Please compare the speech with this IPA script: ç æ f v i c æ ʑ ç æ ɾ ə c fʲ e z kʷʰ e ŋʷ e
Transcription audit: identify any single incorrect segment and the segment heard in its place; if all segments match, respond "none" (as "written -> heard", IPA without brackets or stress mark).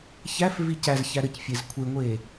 ʑ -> z